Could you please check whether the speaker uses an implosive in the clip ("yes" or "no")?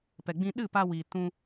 yes